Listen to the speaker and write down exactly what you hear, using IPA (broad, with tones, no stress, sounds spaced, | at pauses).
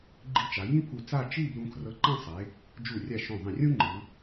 ɡ͡ǃ i˧ t͡ʃ a˩˧ j ĩ˥ pʰ u˧˩ t͡s a˥˧ t͡ʃ i˥˧ b l ũ˧ kʰ r ɤ˧ ǃ ã˥˧ sˤ e˩˧ | d͡ʒ u˧˩ rʲ a˧˩ ʃ õ˧˩ ðˤ ĩ˧˩ rʲ ũ˥ ŋ͡ǃ ɯ˩˧